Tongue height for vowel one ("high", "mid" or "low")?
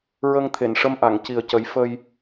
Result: mid